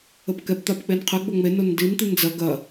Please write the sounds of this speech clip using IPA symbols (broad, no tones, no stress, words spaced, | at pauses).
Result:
əpkɛp t̪apk͡penqʰɘɡ͡bo ŋ͡me nondin t̪ind͡zɐ ɡɐ